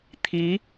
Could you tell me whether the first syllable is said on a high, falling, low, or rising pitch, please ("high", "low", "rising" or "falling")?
rising